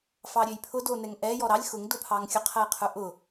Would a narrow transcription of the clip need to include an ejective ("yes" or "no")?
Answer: no